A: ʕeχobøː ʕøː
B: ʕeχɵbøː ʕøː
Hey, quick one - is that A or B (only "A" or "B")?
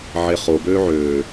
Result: A